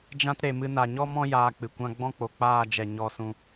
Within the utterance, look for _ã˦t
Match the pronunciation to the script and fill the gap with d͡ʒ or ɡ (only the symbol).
d͡ʒ